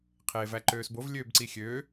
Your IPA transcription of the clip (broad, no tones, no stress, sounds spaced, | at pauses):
qʰ eː v æ ǃ øː s b o v lʲ øː b ǀ i xʲ øː